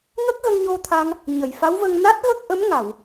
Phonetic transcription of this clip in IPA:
ŋ ə˦˥ k̚ ɣ ə˧ ŋ ɲ o˧ t̪ʰ a˧ ŋ | ɲ ə˨˩˨ j f a˧˥ w v ə˧ ŋ n a˦˥ t̚ ɣ ə˦˥ k̚ ʔ ə˧˥ m ŋ a˨˩˨ w

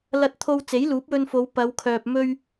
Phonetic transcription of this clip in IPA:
l ɐ˧ t̚ t̪ʰ o˧ w t͡s e˨˥ j l uː˨˥ p̚ w ɵ˧ n f o˨˧ w p ɐ˨˧ w kʰ œː˨ p̚ m ɵ˧ ɥ

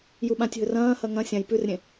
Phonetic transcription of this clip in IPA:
j u ɓ ã tʲ ɦ ɵ r ɐ̃ː h ɐ ŋ ɐ̃ sʲ ã j p ʉ r ɾʲ ẽ

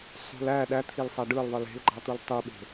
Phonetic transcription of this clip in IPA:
sˤ ṳ l æ ɗ æ t̪ʰ i l sˤ æ ɖ ɯ l ðˤ ɯ l e̤ l ɡ͡ǃ ɑ t̪ u l tˤ y ɓ e̤

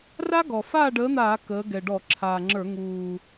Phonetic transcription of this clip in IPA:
r a˦˥ ɡ ɔ˨˩ f aː˥˨ ɖ əː˨˥ n̪ aː˧˩˧ k əː˩˧ ɡ ɛ˨˩ ɖ ɔ˧˩˧ ǁʰ aː˨˩ ŋ͡ǁ ə˞˧˩˧ ŋ uː˨˩

